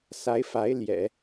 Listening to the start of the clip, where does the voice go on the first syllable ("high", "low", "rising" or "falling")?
rising